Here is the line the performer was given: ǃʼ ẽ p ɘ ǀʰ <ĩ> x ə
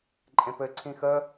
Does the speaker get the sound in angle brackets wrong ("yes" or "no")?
no